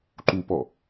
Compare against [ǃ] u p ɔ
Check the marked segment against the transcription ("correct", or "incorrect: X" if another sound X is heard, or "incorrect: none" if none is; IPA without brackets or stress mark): correct